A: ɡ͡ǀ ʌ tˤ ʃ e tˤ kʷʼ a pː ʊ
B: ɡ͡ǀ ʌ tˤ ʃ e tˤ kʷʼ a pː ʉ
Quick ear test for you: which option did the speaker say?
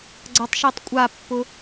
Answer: A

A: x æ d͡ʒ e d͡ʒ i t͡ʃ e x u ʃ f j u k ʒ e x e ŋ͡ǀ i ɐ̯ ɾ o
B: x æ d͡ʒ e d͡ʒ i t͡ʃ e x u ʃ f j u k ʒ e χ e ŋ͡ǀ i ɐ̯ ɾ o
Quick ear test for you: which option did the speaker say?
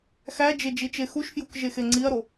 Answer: A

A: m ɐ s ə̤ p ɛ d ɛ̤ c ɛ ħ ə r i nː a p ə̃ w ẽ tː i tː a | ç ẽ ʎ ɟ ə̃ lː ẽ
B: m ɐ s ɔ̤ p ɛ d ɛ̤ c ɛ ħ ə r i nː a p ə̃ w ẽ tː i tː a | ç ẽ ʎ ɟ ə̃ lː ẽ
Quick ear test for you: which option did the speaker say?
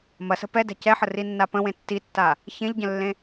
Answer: A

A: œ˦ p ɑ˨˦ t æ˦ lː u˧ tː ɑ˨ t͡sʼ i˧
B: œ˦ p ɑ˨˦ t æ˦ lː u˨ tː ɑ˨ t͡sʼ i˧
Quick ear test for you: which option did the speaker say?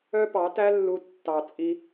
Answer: A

